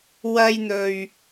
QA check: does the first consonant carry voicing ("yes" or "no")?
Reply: yes